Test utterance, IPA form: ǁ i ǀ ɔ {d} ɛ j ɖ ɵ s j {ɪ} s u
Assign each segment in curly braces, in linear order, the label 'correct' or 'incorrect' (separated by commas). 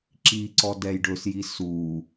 correct, incorrect